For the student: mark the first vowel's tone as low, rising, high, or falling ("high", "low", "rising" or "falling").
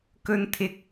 high